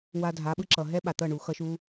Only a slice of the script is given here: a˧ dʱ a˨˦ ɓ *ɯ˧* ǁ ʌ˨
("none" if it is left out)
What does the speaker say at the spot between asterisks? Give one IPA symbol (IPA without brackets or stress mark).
ɯ˧